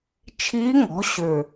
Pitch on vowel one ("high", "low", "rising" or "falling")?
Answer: rising